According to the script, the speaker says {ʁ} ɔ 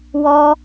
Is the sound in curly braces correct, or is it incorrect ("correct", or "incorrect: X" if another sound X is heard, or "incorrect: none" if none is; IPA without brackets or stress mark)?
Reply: incorrect: w